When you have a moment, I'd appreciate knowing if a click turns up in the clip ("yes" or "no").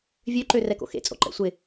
yes